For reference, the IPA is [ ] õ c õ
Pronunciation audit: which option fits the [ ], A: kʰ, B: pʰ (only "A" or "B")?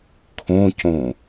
A